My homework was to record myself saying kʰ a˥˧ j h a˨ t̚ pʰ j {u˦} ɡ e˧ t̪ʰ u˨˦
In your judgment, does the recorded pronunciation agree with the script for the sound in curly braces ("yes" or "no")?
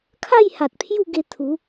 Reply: no